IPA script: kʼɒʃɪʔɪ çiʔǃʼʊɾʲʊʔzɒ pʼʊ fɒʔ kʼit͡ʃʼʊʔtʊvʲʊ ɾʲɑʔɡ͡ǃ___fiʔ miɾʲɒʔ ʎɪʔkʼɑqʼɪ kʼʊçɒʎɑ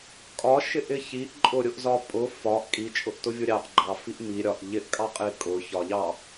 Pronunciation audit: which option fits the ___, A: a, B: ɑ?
B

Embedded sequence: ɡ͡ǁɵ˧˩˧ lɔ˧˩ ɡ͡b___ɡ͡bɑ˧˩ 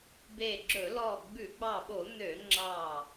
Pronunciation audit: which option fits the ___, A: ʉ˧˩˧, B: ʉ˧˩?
A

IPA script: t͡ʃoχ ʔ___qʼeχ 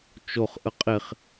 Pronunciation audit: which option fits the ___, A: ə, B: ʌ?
A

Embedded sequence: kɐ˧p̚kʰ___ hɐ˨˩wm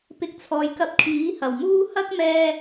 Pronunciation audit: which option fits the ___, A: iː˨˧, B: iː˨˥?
B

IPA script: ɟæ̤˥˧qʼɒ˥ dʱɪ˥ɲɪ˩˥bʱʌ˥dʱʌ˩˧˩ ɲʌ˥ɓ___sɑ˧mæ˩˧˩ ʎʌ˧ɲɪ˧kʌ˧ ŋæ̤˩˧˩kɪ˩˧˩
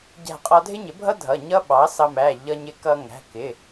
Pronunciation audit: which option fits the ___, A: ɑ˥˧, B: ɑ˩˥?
B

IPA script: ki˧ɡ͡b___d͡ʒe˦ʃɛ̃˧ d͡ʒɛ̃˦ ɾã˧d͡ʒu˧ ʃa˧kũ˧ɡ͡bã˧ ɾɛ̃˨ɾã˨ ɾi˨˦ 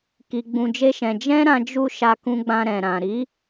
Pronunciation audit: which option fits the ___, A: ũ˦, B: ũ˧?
B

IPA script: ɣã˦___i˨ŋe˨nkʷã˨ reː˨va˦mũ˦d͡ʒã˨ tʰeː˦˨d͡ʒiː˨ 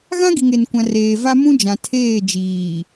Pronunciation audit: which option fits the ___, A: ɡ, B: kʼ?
A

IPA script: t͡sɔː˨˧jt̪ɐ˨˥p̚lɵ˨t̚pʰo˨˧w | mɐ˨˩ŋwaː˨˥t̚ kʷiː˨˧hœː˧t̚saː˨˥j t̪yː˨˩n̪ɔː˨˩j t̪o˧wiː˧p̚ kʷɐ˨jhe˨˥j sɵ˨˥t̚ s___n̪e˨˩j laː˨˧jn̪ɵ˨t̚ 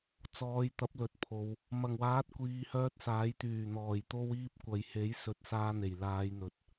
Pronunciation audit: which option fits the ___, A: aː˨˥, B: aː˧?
B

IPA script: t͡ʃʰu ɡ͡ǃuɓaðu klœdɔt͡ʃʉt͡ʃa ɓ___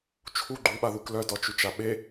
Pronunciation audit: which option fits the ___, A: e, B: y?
A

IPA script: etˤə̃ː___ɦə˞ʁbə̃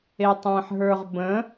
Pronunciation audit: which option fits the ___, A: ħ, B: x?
A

